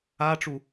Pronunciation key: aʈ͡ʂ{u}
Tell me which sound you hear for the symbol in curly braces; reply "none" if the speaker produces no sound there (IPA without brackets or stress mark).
u